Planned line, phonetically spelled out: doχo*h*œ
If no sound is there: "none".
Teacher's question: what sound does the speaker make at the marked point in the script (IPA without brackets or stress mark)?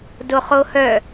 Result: h